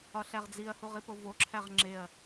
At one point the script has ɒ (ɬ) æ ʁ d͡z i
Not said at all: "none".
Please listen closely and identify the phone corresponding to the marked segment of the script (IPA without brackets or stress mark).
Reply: ɬ